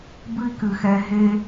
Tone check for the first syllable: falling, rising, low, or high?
high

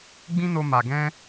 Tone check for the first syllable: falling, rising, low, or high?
high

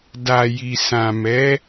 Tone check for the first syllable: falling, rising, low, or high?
low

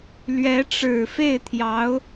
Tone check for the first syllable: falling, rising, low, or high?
rising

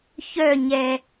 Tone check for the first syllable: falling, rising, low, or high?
falling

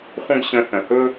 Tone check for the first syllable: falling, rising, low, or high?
high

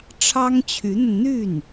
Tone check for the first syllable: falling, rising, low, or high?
high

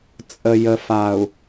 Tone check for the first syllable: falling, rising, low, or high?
low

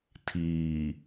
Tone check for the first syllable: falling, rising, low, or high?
low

